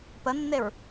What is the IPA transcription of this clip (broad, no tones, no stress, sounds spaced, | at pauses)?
p ə nː e ɹ